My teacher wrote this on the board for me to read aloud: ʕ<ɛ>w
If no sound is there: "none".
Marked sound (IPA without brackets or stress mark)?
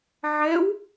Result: ɛ